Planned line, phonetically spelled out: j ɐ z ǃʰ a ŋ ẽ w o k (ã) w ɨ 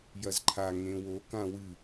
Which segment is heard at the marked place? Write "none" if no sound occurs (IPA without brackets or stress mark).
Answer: ã